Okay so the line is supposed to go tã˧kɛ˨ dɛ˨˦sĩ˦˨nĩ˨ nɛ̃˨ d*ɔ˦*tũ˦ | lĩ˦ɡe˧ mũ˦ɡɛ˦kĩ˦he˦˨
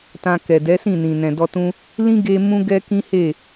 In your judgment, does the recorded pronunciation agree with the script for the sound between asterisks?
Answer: no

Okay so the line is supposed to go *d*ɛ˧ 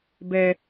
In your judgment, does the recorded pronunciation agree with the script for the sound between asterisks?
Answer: no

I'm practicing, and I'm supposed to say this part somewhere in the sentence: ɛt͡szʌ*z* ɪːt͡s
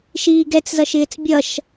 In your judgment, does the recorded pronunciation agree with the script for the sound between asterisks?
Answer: no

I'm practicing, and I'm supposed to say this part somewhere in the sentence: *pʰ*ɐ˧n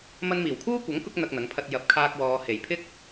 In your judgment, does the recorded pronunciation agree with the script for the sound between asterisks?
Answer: no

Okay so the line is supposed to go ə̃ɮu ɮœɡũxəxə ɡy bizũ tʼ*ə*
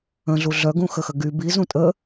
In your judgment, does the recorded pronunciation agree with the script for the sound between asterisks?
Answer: yes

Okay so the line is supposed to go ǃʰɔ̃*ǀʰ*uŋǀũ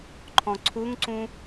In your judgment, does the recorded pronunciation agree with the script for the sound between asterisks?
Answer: yes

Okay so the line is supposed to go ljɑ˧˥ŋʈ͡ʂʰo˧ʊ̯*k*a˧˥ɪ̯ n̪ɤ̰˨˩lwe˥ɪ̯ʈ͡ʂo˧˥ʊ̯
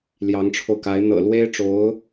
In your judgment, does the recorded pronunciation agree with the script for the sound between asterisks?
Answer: yes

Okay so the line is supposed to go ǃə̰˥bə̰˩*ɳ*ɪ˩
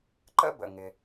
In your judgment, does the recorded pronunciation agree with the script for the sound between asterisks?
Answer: no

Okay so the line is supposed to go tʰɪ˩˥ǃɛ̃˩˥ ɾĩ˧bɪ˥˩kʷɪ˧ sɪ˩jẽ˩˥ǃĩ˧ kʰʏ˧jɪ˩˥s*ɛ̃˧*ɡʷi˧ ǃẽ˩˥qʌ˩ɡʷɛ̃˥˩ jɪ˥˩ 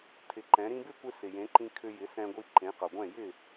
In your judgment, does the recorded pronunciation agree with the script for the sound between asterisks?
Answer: yes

